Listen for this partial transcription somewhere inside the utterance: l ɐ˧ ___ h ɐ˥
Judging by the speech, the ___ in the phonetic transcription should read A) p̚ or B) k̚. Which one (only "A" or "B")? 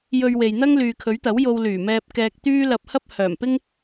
A